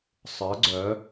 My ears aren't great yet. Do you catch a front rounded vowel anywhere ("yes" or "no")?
yes